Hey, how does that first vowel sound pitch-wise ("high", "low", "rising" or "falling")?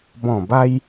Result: low